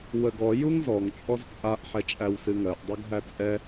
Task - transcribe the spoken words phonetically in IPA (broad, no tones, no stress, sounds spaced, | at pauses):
w ə ɡ ɔ j u ŋ z ɔ ŋ t͡ʃʼ ɔ z t͡sʼ a ʔ ħ ɛ t͡ʃʼ æ w s ɨ ŋ ɜ ʔ dˤ ɜ ɡ ɦ æ t͡sʼ ɛ